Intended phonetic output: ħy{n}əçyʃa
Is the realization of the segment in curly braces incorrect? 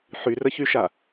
yes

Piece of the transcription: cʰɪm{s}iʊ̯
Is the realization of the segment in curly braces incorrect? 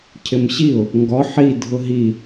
yes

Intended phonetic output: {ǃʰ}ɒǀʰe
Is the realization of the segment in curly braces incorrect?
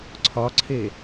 yes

